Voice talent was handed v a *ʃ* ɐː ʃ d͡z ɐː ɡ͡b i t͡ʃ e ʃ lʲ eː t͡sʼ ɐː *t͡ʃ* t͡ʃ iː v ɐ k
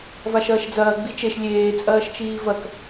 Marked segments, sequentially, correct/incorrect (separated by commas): correct, incorrect